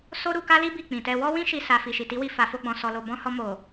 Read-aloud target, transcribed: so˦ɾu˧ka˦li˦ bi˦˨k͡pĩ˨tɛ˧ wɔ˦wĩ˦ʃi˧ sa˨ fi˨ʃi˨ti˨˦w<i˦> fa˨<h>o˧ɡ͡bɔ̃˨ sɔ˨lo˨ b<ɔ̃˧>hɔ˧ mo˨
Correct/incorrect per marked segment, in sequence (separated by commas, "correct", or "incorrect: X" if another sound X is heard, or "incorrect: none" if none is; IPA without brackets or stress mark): incorrect: i˧, incorrect: f, correct